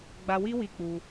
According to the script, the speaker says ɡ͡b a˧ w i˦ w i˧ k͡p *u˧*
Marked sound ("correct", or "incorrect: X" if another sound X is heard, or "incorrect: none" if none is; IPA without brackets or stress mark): correct